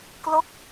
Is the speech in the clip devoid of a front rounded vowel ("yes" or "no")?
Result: yes